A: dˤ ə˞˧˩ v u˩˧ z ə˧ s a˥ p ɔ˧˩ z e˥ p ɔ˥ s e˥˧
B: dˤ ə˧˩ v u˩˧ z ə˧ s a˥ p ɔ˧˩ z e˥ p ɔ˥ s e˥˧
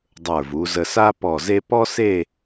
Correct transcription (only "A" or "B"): A